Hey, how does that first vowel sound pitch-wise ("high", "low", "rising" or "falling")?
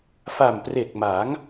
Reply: low